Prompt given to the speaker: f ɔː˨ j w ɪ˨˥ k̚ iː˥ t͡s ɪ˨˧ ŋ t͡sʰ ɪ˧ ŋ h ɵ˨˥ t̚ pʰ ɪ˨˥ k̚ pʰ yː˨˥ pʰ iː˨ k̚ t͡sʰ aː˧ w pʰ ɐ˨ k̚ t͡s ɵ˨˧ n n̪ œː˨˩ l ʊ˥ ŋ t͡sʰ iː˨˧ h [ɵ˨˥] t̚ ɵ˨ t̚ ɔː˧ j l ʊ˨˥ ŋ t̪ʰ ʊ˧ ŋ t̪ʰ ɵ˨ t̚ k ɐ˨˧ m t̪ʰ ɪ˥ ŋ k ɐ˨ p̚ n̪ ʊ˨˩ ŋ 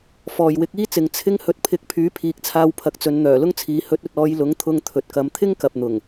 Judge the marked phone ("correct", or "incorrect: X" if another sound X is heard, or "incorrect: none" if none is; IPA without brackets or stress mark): correct